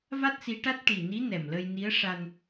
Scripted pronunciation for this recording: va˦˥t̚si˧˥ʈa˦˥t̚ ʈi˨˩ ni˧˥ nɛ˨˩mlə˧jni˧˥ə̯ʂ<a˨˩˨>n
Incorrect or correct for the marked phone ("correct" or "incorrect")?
incorrect